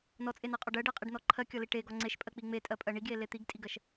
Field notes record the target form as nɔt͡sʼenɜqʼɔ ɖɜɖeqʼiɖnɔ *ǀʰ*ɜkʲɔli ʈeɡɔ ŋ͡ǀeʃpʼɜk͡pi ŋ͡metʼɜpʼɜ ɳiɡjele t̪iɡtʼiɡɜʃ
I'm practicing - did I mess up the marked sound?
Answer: yes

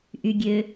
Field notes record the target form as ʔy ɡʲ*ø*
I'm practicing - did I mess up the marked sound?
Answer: no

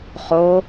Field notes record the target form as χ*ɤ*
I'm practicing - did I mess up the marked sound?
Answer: yes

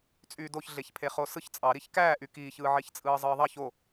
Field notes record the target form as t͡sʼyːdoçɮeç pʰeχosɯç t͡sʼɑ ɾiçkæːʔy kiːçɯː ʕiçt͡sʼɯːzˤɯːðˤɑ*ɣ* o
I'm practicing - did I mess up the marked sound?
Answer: yes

